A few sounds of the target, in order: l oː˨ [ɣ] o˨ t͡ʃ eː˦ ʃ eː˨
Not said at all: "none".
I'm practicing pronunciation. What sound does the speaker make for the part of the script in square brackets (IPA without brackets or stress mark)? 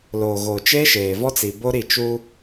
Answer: ɣ